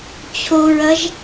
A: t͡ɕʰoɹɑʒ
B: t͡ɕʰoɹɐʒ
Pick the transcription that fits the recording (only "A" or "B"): B